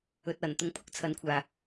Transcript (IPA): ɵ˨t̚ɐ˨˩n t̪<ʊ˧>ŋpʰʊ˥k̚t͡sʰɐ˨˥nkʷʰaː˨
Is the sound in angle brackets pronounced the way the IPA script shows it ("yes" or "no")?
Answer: yes